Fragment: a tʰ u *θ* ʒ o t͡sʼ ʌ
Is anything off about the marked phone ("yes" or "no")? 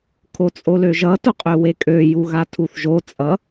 no